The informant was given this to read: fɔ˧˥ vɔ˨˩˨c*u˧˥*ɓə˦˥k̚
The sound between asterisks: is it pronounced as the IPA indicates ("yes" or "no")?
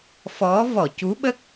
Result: yes